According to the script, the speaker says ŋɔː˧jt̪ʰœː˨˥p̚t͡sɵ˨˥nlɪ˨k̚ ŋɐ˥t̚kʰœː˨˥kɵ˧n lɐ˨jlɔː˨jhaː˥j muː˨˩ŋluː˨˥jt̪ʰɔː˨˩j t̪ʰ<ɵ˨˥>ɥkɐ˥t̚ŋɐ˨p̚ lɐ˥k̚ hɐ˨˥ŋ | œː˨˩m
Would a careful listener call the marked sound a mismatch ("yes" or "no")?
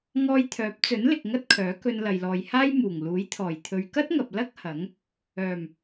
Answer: yes